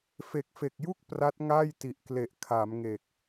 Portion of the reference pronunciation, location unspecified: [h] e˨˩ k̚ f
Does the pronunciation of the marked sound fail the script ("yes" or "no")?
yes